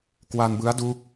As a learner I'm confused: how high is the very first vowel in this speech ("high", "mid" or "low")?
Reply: low